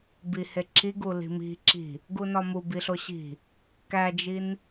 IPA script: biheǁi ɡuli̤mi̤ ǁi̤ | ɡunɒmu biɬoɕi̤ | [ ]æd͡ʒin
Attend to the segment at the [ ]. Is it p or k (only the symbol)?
k